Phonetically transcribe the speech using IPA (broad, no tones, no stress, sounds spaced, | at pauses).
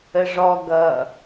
ə ʐ ɔ ɡ ʌ